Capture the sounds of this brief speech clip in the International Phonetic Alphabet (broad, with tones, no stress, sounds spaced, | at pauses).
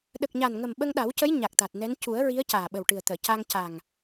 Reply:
ɗ ə˨˩ k̚ ɲ a˨˩ n ŋ ə˨˩ m ɓ ə˧ ŋ ɗ a˨˩˦ w c ə˧˥ j ɲ a˨˩ k̚ t̪ a˨˩ t̚ n ɛ˧˥ n c u˨˩˦ ə̯ ɹ i˧˥ ə̯ c aː˨˩ ɓ ə˨˩ w ʈ ɨ˨˩ ə̯ t̪ əː˨˩˨ c a˧ ŋ c a˨˩ ŋ